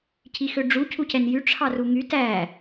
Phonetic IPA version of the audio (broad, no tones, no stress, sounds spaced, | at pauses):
cʰ i x ø ɖ͡ʐ u cʰ u c ɛ n j y ʈ͡ʂʰ ɑ r u ŋ y t æ